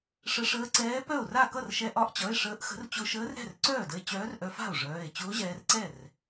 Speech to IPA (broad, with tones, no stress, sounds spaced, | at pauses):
ʂ ə˧ ʂ əː˧˥ ǀ ɛː˧˥ p œ˥˩ o̯ r a˥˩ k ʌ˥˩ r ʃ ɛ˧ ʔ ɒ˧˥ ʔ t͡ɕ ʌ˩˧˩ e̯ ʂ əː˧˥ ʔ x ə̤˧˥ r t͡ɕ ʊ˧ ʃ əː˧˥ r ɾ ɛ̤˥˩ r ǀ œː˥˩ d ə˧ e̯ t͡ɕ œː˧˥ r ʔ œ˧ f a̤˥˩ o̯ ʐ œː˩˧˩ e̯ t͡ɕ ʊː˧˥ ʑ ɛː˧ r ǀ ɛ˥˩ r